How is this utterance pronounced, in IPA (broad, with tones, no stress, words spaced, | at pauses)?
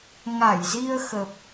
ŋa˧˩jzi˧ə̯ xə˨˩p̚